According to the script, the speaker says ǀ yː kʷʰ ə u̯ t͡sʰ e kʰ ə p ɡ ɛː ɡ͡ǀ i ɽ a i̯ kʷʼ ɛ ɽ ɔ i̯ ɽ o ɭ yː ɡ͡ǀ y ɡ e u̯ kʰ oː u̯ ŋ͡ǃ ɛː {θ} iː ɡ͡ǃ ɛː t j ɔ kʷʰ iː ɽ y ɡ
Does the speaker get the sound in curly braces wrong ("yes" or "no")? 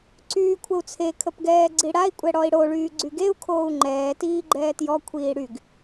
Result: yes